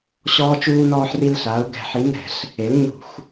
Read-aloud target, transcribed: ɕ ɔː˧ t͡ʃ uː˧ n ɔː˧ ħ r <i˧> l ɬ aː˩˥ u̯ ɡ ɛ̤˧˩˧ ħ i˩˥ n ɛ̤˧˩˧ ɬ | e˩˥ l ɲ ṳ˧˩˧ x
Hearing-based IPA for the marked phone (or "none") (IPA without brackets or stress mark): i˧